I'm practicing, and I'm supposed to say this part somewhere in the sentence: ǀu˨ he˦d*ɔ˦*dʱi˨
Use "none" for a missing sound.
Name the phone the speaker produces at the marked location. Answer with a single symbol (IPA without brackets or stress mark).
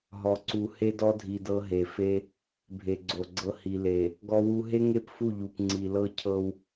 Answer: ɔ˦